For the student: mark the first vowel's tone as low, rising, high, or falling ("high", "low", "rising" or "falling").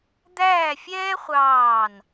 falling